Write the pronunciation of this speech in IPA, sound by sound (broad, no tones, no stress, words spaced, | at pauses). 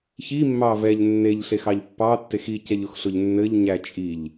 çimːɑ vɛʎ nːeʎɬexɑʎ pːɑtːex icɛʎʊxɬʊʎ nːɘʎɲæ t͡ʃʼiʎ